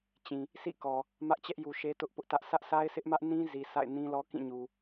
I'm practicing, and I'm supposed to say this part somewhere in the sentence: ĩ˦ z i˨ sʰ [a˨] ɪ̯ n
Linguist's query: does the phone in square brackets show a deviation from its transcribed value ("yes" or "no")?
yes